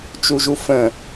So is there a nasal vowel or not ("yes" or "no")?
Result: yes